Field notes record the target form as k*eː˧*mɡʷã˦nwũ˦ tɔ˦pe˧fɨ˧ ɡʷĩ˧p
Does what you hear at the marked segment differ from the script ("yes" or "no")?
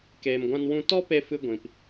no